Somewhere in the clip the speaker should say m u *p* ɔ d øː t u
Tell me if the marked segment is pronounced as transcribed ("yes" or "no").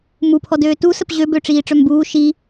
no